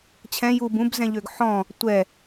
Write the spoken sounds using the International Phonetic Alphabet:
t͡ɕʰɛ̃ jub ũbzɛ̃ʎøɡ ħɔ̃ | tʷɛ

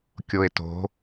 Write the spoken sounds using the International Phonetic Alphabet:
kʲoe̯to̤

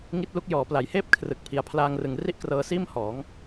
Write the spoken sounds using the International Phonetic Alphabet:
ŋi˦˥t̚lu˦˥k̚ jɔː˩˦pla˨˩jheː˥˩p̚ kʰrɯ˨˩k̚ pʰi˨˩a̯pʰlaː˧ŋrɯ˨˩ŋ ri˥˩ʔkrɤː˧siː˥˩m hɔː˩˦ŋ

